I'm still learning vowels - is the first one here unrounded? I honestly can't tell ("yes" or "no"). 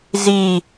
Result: yes